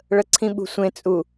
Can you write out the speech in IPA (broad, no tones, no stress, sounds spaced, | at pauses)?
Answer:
ɭ ə ǀʰ ĩ ɓ ṳ sʷ ẽ t͡sʼ u